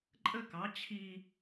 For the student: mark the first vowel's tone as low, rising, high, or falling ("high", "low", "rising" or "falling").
high